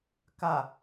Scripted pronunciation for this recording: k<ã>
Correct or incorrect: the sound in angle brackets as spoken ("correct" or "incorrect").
incorrect